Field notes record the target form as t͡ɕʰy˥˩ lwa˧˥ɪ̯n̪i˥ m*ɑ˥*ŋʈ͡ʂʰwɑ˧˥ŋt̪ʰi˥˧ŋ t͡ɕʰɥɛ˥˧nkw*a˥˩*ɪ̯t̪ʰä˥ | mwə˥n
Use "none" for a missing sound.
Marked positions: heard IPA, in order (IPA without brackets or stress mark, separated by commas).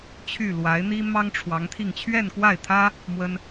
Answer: ɑ˥, a˥˩